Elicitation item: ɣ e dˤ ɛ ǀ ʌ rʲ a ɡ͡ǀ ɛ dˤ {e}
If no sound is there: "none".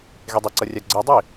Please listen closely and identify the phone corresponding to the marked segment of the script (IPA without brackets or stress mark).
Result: i